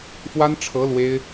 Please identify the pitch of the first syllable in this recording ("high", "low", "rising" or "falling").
high